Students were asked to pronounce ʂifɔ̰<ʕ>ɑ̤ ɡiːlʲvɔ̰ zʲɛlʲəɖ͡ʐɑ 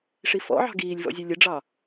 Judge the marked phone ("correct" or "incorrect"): correct